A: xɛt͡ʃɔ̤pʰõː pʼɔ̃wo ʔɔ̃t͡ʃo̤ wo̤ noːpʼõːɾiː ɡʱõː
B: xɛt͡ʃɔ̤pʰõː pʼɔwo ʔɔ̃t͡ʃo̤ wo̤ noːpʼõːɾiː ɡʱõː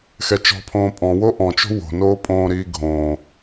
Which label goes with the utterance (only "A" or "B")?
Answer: A